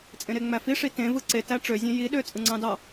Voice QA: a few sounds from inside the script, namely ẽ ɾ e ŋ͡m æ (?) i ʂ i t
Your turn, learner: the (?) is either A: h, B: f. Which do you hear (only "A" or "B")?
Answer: B